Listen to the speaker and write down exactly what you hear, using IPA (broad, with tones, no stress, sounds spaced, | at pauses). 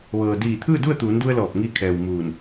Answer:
ʋ ɤː˩ d iː˧˩ t̪ʰ ɯː˥˨ d u˥˨ ə̯ t̪ uː˩˧ n d u˧ ə̯ l ɔː˧˩ p̚ ŋ iː˧ kʰ ɛː˩ w m uː˧˩ n